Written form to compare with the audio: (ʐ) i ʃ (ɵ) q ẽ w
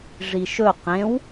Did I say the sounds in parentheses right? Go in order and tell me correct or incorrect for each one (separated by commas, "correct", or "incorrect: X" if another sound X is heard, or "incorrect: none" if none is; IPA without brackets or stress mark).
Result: correct, correct